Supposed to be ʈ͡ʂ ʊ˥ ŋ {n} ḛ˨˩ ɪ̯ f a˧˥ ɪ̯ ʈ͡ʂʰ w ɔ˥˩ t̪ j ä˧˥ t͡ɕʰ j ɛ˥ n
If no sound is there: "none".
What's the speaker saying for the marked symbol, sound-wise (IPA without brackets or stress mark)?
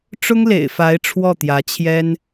l